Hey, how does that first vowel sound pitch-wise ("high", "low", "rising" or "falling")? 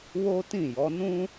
high